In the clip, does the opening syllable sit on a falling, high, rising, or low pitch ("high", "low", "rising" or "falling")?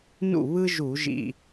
falling